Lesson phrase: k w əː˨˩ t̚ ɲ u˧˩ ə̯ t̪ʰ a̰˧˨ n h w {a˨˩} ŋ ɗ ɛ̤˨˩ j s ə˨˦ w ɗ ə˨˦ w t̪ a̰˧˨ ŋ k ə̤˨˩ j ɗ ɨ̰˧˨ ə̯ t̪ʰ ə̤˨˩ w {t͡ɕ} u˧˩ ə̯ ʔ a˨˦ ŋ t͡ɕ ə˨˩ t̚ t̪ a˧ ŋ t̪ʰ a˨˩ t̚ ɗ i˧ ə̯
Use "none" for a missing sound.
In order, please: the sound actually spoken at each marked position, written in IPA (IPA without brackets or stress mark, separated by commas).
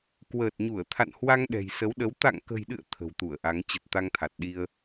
a˧, t̪